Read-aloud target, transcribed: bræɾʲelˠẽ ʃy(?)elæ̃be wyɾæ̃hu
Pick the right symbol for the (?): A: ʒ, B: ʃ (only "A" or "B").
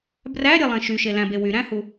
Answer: B